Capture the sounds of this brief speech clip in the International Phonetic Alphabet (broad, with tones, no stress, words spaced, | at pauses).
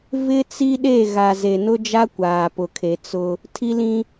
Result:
vɪ˦t͡si˦ɗe˦˨ ɣa˨ze˨nʊ˦ d͡ʒa˦kʷaː˨pʊ˨kʰe˨ t͡sʊ˦ | tʰi˦lĩ˦